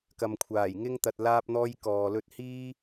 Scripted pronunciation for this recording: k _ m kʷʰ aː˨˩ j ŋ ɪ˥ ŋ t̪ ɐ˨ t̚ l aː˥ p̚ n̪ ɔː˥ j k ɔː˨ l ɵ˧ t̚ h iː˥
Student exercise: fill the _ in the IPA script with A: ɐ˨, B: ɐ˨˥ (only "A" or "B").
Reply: A